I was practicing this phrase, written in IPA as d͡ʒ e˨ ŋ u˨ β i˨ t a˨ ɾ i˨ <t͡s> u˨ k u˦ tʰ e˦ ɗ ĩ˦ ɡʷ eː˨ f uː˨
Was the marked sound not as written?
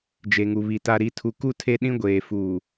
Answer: yes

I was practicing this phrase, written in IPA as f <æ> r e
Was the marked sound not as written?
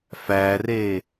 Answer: no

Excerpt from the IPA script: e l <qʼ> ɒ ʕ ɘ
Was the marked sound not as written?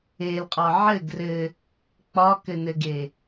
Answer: no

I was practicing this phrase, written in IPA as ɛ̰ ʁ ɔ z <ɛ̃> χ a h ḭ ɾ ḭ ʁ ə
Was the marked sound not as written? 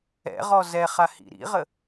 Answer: yes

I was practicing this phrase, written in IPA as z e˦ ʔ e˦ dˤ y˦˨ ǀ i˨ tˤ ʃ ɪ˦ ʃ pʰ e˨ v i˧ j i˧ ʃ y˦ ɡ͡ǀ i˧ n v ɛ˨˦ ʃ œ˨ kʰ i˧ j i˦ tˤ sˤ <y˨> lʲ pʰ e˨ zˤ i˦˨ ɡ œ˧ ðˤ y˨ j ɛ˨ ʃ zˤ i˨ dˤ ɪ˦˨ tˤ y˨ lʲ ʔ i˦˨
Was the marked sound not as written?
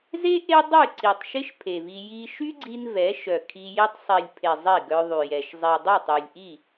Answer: yes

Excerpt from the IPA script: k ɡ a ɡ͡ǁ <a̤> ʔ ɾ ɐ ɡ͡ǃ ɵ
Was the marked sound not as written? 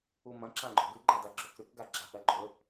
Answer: no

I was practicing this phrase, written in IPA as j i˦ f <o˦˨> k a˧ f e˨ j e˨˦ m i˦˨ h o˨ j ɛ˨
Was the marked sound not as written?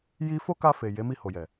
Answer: yes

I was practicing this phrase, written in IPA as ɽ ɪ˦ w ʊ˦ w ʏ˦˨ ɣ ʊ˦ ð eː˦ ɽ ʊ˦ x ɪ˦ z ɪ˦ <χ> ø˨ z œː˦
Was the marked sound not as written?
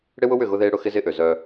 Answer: yes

